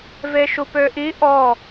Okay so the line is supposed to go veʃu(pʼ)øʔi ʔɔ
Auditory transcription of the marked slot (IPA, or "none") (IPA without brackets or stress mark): p